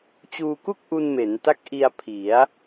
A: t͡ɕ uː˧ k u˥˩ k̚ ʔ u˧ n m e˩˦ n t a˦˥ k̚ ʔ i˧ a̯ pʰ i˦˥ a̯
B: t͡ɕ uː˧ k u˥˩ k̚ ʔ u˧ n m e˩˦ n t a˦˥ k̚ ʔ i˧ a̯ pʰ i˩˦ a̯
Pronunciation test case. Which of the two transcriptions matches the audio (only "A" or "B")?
B